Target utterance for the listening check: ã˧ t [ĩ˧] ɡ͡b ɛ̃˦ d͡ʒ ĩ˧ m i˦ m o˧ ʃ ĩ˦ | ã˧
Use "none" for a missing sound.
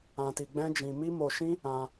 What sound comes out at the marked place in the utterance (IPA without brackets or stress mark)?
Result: i˧